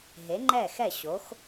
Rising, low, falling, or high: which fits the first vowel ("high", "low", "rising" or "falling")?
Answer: rising